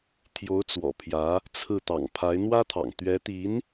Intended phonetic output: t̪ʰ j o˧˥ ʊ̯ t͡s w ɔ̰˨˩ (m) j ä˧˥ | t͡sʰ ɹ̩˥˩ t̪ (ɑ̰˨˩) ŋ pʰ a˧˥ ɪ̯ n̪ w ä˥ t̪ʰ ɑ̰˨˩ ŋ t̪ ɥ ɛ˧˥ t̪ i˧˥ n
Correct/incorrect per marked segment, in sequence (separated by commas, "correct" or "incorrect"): incorrect, correct